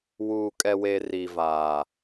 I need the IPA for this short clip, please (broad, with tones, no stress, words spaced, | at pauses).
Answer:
wuː˨kʼɛ˨we˨ ri˨vaː˨